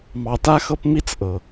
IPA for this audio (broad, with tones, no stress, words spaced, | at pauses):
mɑ˨ta˦xɤ˦p mi˥t͡sʔɤ˩